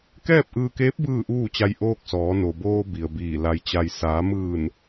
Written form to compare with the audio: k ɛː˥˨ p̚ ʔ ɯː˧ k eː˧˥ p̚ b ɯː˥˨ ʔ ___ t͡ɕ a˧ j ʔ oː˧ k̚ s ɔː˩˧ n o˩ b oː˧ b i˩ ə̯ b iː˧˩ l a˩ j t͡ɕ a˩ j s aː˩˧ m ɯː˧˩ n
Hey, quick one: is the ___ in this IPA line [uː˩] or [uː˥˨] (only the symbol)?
uː˥˨